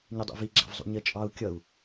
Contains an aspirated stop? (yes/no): no